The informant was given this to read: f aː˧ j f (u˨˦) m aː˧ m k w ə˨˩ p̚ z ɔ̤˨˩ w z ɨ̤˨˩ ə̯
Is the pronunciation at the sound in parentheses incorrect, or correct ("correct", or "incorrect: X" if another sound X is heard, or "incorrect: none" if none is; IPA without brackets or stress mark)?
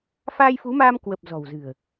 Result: correct